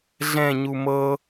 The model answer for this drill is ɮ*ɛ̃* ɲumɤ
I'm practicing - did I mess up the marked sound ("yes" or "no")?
no